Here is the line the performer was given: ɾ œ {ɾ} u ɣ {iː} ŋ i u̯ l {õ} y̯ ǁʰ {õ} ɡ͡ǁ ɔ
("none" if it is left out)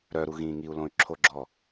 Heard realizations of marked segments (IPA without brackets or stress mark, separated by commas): ɾ, ĩː, õ, o